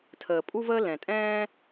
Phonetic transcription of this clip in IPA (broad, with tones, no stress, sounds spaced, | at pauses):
tʰ əː˩ pʼ u˦ v əː˦ l ɛ̃˩ tʼ ɛ̃ː˦